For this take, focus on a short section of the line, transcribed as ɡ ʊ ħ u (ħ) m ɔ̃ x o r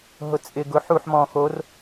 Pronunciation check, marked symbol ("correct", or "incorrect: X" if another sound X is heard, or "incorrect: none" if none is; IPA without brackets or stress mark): correct